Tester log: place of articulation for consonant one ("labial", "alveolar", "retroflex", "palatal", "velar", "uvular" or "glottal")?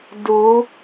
alveolar